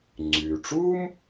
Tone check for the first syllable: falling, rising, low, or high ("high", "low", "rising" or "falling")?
low